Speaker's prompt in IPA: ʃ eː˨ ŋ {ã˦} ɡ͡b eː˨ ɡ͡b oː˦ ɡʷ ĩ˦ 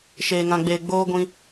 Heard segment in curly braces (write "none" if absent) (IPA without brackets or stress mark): ã˨